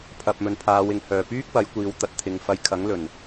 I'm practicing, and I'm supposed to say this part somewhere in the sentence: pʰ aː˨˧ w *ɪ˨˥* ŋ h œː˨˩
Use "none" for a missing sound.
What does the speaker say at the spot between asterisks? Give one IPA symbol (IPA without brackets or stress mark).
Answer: ɪ˨˩